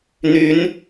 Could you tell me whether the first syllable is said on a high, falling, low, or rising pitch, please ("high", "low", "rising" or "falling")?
rising